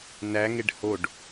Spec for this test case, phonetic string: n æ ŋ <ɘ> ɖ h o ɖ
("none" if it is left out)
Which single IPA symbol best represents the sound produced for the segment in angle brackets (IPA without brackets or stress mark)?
e